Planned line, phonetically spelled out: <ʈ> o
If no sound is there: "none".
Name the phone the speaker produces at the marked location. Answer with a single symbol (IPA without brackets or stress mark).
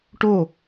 ʈ